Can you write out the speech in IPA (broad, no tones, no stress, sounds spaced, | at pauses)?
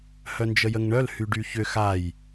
h œ n d͡ʒ ə j ə ŋ ɳ œ l h y ɖ y ç ʏ x a j